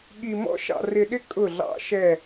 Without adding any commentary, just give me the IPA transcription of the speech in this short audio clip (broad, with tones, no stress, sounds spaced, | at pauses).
ɠ i˨ m ɔ̰˦ ʃ ɑ̰˨ r ɪ˨ ɗ ɪ˦ kʼ ʊ˦˨ ɮ ɑ̰˦ ʃ ɛ˦˨